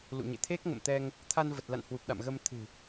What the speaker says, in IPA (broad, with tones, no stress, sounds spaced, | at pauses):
l ṵ˧˨ ɲ ḛ˧˨ t̪ʰ e˦˥ k̚ ŋ ə̰˧˨ m t̪ ɛ˧ ŋ | t̪ʰ a˧ n v ə˨˩ t̚ l a̰˧˨ n h w u˨˩ p̚ ɗ a̰˧˨ m ɣ ə˧ m t̪ʰ ɨ̤˨˩